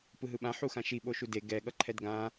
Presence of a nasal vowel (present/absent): present